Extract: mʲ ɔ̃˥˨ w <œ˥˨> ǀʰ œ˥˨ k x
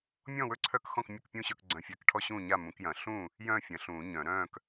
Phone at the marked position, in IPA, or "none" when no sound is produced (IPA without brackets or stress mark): ɵ˥˨